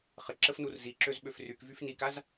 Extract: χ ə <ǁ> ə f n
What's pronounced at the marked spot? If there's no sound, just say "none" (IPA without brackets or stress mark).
ǁ